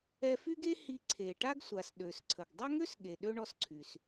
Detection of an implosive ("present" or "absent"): present